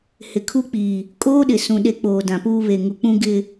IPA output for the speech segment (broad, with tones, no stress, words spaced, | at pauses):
hɪ˨kʰu˦k͡piː˨ | kʼoː˦ɗɪ˨sũ˨ ɗe˦ k͡poː˨dã˨puː˦ βe˨ ŋu˨k͡pũ˦ ɡɪ˦